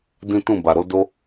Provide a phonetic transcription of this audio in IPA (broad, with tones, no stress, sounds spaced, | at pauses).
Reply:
d ĩ˦ t ũ˦˨ b a˨ ɾ o˨˦ d o˦